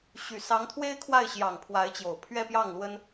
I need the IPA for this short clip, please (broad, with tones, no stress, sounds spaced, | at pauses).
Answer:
ɕ y˨˩ s ɑ˧˥ ŋ t̪ʰ w e˥ ɪ̯ kʰ w a˥˩ ɪ̯ ɕ j ɑ˨˩ ŋ pʰ w a˧˥ ɪ̯ t͡ɕ j o˨˩ ʊ̯ pʰ ɥ ɛ˥˧ p j ɑ˥˩ ŋ l w ə˥ n